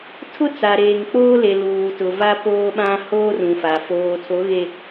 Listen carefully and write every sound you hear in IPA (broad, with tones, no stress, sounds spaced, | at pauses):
tʰ ʊ˦ t͡s a˨ ɾ eː˨ ŋ k͡p oː˦ l e˨ l uː˨ t ʊ˨ v a˦ p oː˦ ɓ ã˦ h oː˦ r ũ˨ f a˨ f oː˨ tʰ o˨˦ ɣ e˨